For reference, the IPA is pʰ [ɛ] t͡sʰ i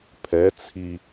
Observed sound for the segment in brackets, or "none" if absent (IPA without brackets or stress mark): ɛ